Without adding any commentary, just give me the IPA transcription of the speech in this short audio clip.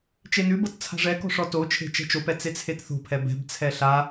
t͡ʃenʉbɤt t͡sʰa̤ʐɛkɔ̤ ʂɔtot͡ʃʰe̤ t͡ʃɛ̤t͡ʃopɛ t͡set͡sʰetθo̤pʰɛ bɛ̤bt͡sʰɛ ɬa

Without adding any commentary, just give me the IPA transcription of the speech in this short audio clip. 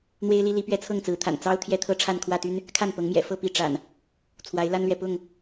n̪we˦ɪ̯li˦li˨˦ pɥɛ˦t͡sʰɤ˥˨ŋt͡sɹ̩˨˦t̪ʰa̰˨˩n t͡sɑ˦ʊ̯ t̪ʰjɛ˦t̪ʰɤ˦ʈ͡ʂʰa˥˨n kʰwä˥˨t̪y˦n | kʰa˥˨npɤ˨˦ŋmjɛ̰˨˩ fɤ˥˨ pi˥˨ ʈ͡ʂa̰˨˩n | t͡sʰwa˨˦ɪ̯la˦nlɥɛ˨ pʊ˥˨ŋ

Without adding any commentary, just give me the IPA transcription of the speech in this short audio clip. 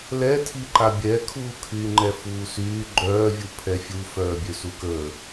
lɛtʰi ǃabʲɛkʰuː kʰyːŋ͡ǃɛfuːsyː ɡ͡ǃœː vʲupʰɛfʲufœː bʲøsukəː

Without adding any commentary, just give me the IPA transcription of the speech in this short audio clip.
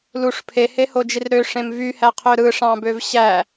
luʂ pʰehehod͡ʒir ɾøʂẽm vyhæqʰø ɾɯʂɑ̃bøv ɕæ

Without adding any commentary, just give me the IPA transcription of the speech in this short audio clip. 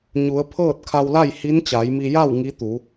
ɲu˩˧ə̯pʰɤː˥˨t̚ kʰa˧wla˥˨j hi˧˥nt͡ɕa˩˧jmi˧ ja˥˨w ŋi˧˥t̪u˩˧

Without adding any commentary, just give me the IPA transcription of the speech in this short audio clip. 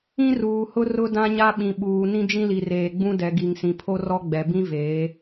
ĩ˦ruː˨hʊ˦ rʊ˦dã˦ɲa˦ ɓĩ˨ɓuː˨ nĩ˦d͡ʒĩ˦ li˨reː˨ɡ͡bũ˦ dɛ˨ɡi˨ŋ sĩ˨pʰo˦rɔ˦ ɡ͡bɛ˨ bĩ˦ veː˨˦

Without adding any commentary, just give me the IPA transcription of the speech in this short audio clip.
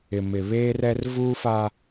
ɪ˨mɪ˨ βeː˦rɛ˦r vuː˦fa˦

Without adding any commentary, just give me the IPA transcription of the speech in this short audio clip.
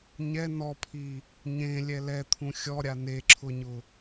ɲɛ nɔpʰi | ɲẽlʲɛ lɛt̪ʰũ xʲɔɾʲa neǁʰʊɲʊ

